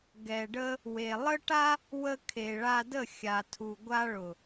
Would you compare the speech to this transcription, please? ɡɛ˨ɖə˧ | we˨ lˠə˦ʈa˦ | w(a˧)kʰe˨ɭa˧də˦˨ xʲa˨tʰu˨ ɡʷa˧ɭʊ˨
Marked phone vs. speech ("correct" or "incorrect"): incorrect